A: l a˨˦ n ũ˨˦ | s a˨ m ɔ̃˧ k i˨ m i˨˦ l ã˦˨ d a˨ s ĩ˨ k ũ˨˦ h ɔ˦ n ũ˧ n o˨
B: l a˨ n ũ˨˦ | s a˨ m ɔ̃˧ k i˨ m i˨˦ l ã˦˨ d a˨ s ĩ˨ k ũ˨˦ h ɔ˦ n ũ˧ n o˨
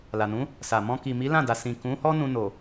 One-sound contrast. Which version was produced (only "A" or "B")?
B